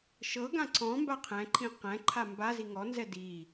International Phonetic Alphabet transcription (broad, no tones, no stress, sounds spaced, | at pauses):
ʃ ɤ ɡ ã ǀ ɔ̃ m b a qʰ ɛ̃ ǃʰ ĩ q ɛ̃ ǃʰ a m b a z i ŋ ɔ n z ɛ d i